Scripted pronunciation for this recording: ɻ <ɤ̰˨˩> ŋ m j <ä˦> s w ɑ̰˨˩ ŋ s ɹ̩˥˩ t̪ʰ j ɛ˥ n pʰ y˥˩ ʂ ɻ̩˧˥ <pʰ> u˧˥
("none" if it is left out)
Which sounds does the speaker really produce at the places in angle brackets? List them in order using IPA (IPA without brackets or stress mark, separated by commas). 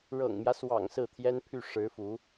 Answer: ɤ̰˨˩, ä˦, f